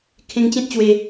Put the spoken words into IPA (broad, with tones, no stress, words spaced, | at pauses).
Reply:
kʰẽ˧ŋt͡ɕẽ˦t̚t͡ɕwe˧